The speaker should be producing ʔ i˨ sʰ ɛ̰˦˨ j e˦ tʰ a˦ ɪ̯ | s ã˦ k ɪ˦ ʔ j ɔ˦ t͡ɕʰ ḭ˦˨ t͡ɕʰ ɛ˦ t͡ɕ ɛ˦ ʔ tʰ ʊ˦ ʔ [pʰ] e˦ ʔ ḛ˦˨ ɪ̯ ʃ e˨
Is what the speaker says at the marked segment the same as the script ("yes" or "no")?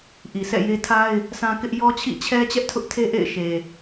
no